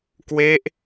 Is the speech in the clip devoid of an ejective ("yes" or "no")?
yes